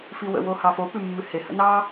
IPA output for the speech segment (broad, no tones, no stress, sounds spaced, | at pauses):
f i w ə̰ w o h ɑ f o p ʉ mː ʉ h e h ə̰ n ɑ